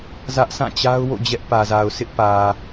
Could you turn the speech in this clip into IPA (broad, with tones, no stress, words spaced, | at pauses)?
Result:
zä˦ʔsã˦˨t͡ɕa˦ʊ̯wo̰˦˨ d͡ʑɛ˦ʔpä˨za˨ʊ̯ sʰɪ˦ʔpä˨